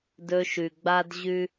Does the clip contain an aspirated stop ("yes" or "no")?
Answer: no